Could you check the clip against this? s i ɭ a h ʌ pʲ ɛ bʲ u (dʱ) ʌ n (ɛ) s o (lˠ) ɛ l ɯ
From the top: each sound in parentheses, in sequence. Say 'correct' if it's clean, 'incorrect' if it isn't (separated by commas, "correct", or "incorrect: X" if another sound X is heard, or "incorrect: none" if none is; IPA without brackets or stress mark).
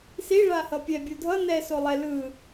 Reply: correct, correct, correct